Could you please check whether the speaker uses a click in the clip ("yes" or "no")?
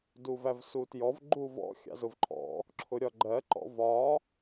yes